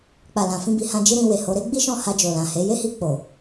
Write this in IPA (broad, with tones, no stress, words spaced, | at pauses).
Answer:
k͡pa˨lã˨ fĩ˧bi˨hã˧d͡ʒi˦ ɾĩ˧we˨ho˨˦ ɾe˦ɡ͡bi˦ʃɔ̃˦˨ ha˧d͡ʒo˨lã˨he˨˦ je˦hi˧ k͡po˨